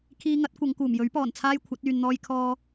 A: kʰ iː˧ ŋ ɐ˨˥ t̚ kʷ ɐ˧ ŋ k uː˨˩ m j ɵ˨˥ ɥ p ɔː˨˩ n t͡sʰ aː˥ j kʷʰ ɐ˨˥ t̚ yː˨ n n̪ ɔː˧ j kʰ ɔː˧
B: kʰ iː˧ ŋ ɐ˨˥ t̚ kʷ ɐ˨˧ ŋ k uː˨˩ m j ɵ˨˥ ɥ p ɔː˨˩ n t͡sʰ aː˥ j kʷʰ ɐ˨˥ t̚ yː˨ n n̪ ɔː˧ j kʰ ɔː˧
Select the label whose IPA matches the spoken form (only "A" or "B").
B